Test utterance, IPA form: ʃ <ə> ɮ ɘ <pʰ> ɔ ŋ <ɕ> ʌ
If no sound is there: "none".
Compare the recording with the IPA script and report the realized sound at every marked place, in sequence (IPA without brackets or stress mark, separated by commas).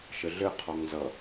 ə, qʰ, z